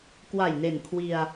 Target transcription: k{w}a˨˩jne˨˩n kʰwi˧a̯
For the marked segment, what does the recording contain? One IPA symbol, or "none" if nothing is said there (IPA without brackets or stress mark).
w